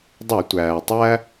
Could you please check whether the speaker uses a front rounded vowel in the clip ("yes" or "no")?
no